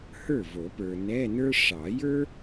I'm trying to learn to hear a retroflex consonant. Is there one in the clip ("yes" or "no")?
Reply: yes